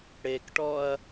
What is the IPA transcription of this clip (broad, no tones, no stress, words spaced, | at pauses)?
ɽekʈɔɐ̯